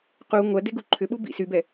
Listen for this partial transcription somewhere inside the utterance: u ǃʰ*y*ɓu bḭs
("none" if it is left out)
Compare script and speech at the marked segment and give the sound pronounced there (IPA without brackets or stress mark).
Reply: ʏ